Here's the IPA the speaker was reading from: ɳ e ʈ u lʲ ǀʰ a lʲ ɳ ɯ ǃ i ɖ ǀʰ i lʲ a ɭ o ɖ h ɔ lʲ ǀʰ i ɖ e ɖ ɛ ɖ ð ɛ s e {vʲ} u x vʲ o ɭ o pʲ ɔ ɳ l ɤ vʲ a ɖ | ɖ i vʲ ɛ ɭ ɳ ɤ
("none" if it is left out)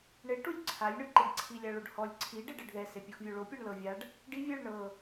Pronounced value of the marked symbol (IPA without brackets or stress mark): pʲ